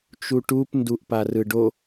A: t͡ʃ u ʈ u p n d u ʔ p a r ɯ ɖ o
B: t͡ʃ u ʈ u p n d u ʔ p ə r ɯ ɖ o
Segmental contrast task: A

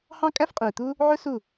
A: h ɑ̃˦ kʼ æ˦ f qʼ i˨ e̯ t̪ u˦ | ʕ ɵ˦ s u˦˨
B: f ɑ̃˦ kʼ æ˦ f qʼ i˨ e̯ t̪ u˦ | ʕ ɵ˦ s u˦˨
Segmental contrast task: A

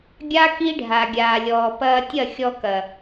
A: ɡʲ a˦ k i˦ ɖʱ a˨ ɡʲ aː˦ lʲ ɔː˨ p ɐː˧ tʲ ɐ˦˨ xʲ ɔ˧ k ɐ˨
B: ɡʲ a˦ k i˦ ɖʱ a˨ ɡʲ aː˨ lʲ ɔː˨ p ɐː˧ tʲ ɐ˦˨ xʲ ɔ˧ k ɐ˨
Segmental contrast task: B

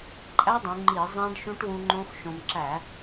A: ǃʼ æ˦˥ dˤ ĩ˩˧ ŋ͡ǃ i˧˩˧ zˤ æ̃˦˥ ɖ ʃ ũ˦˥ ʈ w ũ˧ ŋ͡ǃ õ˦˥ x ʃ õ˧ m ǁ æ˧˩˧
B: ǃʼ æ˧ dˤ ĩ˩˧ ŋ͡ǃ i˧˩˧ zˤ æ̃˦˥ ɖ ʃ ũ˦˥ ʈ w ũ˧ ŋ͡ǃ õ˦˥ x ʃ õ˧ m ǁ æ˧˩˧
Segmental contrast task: A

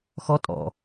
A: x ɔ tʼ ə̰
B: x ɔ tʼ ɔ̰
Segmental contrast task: B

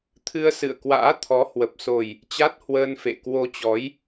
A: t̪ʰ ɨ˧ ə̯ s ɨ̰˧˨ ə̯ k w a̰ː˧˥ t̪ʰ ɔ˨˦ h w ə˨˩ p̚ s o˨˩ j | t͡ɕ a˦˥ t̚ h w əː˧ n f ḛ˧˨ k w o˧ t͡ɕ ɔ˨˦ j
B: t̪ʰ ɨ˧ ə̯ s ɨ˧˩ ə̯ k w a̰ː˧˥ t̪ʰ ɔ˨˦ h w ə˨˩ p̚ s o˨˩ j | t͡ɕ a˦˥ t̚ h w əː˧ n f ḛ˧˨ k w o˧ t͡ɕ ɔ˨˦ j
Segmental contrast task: A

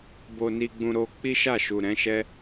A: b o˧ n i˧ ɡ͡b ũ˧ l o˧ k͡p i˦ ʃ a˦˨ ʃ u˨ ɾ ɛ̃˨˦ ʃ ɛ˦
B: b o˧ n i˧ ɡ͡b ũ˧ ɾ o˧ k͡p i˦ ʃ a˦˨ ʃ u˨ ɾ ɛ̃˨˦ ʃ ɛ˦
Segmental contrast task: B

